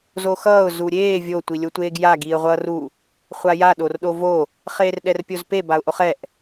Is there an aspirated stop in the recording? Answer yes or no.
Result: no